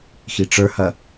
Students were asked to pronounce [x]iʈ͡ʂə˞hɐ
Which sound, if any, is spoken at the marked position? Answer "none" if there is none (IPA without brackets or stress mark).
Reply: x